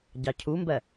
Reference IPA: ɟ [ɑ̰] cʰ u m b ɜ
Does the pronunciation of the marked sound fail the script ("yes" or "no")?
yes